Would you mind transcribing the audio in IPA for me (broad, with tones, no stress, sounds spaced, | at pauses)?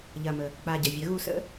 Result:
ʎ ɐ˩ m ə˩ | k͡p a˩ ɟ ɐ˩ vʲ ɐ˩˧ ɣ u˩ s ə̰˧